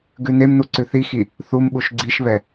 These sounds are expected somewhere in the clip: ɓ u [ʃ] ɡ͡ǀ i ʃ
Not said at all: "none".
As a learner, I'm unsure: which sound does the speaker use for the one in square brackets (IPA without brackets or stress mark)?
ʃ